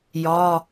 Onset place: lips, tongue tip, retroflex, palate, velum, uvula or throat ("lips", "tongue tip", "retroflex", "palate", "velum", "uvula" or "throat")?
palate